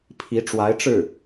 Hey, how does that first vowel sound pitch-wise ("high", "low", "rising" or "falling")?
rising